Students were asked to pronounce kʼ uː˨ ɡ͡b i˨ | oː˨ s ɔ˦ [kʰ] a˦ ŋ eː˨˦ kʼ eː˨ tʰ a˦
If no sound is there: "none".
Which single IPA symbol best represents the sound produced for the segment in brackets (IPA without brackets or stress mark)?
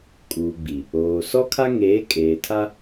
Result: kʰ